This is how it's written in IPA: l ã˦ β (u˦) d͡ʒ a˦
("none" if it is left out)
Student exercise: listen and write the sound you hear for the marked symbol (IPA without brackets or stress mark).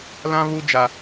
u˦